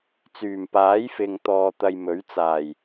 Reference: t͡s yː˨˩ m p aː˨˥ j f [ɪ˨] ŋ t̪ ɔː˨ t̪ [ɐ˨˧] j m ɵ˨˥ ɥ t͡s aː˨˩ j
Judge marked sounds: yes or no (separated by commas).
yes, no